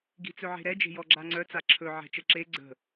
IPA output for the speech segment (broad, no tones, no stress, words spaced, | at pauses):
ɡi̤t͡sɵʕe̤ɾɛ d͡ʒe̤jɔɡ͡ǁaŋ͡ǀœ t͡saǁʰɵ ʕɛ̤t͡ʃəǁe ɡ͡ǀə̤